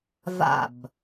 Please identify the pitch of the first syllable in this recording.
falling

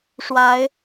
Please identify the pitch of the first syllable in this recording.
rising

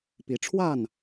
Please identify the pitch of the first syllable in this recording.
rising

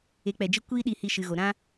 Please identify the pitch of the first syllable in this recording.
rising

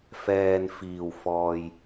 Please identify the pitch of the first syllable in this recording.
low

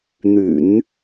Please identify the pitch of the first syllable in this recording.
low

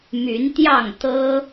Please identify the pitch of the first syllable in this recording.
rising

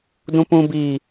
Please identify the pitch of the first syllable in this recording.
low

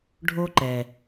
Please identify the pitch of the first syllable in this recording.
high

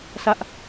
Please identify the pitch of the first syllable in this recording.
high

